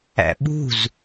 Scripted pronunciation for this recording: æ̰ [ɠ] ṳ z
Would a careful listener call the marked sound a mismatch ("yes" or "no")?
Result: yes